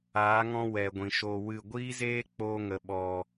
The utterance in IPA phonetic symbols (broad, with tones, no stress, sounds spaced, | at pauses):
aː˨˦ ŋ ɔ̃˧ w ɛ˨ ɡʷ ĩ˨ ʃ o˧ w ɨ˦˨ ɡʷ iː˦ z eː˦ k͡p oː˧ ŋ ə˨ ɓ ɔ˨